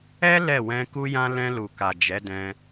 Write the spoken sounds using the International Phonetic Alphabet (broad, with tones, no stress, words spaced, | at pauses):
ɛ˦ lɛ˦˨wɛ̃˧ku˦jã˦ lɛ̃˧lu˨ka˨ d͡ʒɛ˨˦dɛ̃˧